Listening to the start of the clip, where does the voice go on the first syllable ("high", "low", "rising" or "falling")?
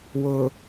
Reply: low